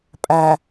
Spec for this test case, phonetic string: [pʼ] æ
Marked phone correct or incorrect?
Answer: correct